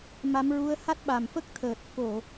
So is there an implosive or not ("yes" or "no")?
yes